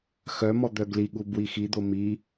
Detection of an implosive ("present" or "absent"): present